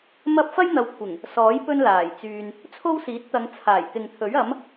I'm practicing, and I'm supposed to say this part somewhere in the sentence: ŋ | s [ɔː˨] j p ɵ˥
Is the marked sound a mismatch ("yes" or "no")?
yes